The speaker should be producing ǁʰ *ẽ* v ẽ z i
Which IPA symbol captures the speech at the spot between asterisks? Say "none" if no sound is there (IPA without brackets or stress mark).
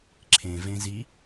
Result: ẽ